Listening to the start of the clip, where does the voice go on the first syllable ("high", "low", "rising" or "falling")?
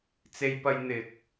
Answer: high